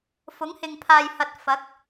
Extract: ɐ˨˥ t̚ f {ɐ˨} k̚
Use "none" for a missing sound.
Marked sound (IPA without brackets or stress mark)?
ɐ˨˥